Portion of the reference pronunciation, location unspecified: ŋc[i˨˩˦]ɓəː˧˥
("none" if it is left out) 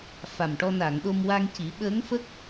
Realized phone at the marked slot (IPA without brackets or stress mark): i˨˩˦